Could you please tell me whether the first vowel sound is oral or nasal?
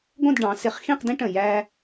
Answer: nasal